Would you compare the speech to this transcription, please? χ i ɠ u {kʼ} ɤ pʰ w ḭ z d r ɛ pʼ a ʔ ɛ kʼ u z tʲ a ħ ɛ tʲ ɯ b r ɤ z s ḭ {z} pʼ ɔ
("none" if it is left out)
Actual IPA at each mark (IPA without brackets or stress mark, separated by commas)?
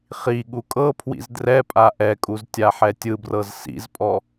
kʼ, z